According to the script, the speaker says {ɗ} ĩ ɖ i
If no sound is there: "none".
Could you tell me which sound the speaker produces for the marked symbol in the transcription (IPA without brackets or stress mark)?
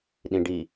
ɗ